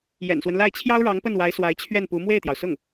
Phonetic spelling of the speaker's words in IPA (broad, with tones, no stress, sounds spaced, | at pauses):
j ɛ̰˨˩ n s w ə˦ n l a˥˩ ɪ̯ t͡ɕʰ j ɑ˥ ʊ̯ ɻ ɑ˧˥ ŋ p ə˥˩ n w a˧˥ ɪ̯ s w a˧˥ ɪ̯ t͡ɕʰ ɥ ɛ˥˩ n p u˧˥ m w e˥˩ ɪ̯ t̪ j ɑ˩ ʊ̯ s ʊ˥˩ ŋ